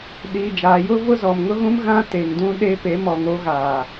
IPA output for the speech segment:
ɗ iː˨ d͡ʒ aː˨ j ʊ˦ v ʊ˦ z ɔ˨ m ŋ ʊ˦ ɣ ũ˦ m ɣ ã˦ t e˨ ŋ d ũ˦ ɗ e˦ p e˨˦ m ɔ˨ ŋ o˦ ɣ aː˨

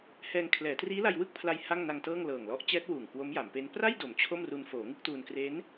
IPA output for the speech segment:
h ɛː˧ ŋ kʰ l ɛː˩˦ t r iː˦˥ l a˧ j w ɯ˥˩ k̚ pʰ l a˧ j h a˥˩ ŋ n a˧ ŋ t ɤː˥˩ ŋ l ɤː˨˩ ŋ l ɔ˦˥ ʔ t͡ɕ ɛː˦˥ t̚ w uː˨˩ ŋ k w o˦˥ m j a˩˦ m p e˦˥ n p r a˥˩ j d o˩˦ m t͡ɕʰ o˥˩ m r u˧ n f oː˩˦ ŋ ɯ˥˩ k̚ t uː˧ n k r e˦˥ n

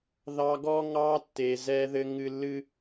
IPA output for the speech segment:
ð ɑ˦ ɡ ɔ˦ ŋ ɑ˦ tː e˨ z ɛ˦ ð ɘ˦ ŋ ɨ˦ lː ɨ˦

